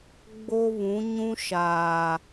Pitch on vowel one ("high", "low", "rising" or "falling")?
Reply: high